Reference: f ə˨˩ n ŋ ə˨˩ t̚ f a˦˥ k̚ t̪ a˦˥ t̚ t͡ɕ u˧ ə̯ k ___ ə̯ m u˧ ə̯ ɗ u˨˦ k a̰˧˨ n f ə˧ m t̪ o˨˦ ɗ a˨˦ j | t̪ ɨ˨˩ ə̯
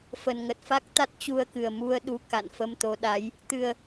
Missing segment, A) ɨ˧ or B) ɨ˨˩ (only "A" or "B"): B